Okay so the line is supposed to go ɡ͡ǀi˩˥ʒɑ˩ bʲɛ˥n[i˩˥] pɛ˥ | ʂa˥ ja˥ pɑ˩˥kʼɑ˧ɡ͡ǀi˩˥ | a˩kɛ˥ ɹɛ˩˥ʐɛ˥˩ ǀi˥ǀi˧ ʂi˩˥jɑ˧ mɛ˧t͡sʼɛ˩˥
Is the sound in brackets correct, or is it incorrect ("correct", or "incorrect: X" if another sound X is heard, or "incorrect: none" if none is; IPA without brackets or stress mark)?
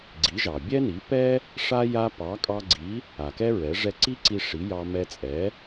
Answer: correct